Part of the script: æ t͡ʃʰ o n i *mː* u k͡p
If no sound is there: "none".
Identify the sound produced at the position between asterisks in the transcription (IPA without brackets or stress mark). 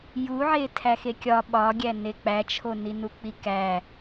n